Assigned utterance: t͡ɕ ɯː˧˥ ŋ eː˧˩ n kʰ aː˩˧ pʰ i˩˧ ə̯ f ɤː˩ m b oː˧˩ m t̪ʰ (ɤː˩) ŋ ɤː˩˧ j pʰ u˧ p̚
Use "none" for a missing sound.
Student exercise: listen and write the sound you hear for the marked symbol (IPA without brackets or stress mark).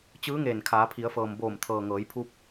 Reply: ɤː˩